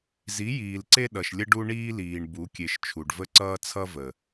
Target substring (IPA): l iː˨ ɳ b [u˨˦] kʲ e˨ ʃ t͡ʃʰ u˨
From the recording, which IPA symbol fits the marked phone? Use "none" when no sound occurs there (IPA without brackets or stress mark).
u˨˦